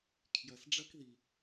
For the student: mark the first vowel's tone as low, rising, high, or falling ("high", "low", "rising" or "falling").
low